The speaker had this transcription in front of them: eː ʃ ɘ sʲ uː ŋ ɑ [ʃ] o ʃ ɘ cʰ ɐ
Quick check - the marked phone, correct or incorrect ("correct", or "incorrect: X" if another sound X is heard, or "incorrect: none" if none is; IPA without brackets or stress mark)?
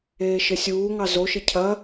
incorrect: z